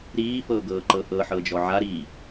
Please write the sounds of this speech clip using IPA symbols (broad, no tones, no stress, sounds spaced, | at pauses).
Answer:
ɾ iː f ɤː ɡ ɤː ǃ ɤ ʔ ɤ ħ ɤ d͡ʒ ɔ ʕ a ɾ iː